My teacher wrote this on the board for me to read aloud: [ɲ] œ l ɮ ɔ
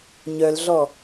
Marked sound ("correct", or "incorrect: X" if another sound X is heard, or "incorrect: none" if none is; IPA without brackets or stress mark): correct